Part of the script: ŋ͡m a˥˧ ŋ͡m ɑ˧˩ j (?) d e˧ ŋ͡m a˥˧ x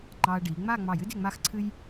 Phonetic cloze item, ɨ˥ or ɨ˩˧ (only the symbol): ɨ˥